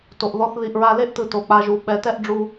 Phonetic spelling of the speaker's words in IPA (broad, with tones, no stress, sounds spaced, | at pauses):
t o˨ ʔ ð ɔ˧ θ ð i˨ ʔ ɹ a˧ l e˦ ʔ t ɯ˨ t o˨ k͡p a˧ ʒ u˨˦ ɓ ɛ˨˦ t ɛ˦ ʔ ɖ͡ʐ u˧